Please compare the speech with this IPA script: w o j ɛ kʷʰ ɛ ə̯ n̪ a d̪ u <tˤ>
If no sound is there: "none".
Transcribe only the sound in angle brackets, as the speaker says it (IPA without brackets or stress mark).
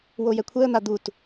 t